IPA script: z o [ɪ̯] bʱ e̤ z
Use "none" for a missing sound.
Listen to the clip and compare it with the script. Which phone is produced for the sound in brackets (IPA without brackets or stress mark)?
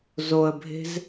ə̯